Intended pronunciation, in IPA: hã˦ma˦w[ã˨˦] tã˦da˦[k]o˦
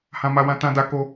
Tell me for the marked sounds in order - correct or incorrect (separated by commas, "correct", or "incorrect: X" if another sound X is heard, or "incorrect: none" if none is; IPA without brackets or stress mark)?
incorrect: ã˦, correct